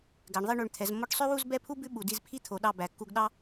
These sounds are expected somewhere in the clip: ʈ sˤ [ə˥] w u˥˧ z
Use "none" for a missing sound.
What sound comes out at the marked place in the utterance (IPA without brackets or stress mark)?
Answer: ø˥